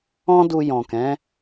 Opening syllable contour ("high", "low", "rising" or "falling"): high